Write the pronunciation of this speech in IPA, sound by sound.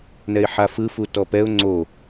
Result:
n ɛ ɪ̯ ħ a f ɯ f u t ɔ p ɛ ʊ̯ ŋ͡ǀ o

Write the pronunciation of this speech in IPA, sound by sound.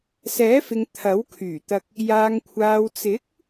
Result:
s ɛː˨˥ f ɪ˨ ŋ t̪ʰ ɐ˨˥ w kʰ yː˨˩ t̪ ɐ˧ k̚ | j aː˨ ŋ kʷʰ aː˨ w t͡s ɪ˨˥ k̚

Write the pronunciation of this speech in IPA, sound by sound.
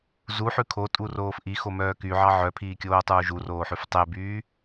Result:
z u ħ ʉ kʰ o tʼ u r oː f ʔ i x o m œː k y ʕ ɑ ʕ œ pʰ iː kʲ oː tˤ uː ʒ u r oː ħ ʉ f tˤ e b yː

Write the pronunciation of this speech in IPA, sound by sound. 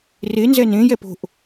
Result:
r e n z ɛ n ẽ j ɛ p o̤ ʔ

